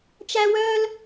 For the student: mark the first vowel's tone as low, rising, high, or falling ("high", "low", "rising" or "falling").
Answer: high